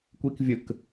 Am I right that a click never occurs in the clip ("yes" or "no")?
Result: yes